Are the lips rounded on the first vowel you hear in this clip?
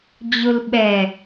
yes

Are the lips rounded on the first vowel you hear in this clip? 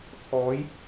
yes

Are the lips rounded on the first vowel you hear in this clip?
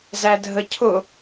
no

